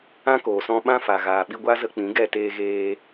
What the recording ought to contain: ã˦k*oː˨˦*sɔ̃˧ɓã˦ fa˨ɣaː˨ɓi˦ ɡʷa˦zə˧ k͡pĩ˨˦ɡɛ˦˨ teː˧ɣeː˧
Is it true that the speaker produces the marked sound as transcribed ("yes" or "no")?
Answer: no